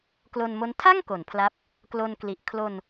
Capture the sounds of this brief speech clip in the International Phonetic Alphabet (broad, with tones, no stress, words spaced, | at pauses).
klo˧nmo˦˥n tʰa˥˩ŋ ko˩˦npʰla˦˥p̚ | klo˧nkli˨˩ʔ kʰlo˧n